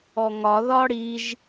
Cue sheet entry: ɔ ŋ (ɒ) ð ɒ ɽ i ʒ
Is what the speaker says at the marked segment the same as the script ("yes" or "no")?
yes